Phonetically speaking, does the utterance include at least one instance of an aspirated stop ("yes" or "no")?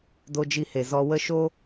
no